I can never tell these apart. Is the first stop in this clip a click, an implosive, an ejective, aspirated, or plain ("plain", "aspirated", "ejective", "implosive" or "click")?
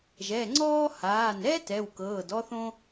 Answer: click